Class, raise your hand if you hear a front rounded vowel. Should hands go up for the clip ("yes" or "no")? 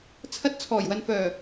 yes